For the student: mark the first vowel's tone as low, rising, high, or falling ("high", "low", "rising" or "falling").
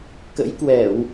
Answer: rising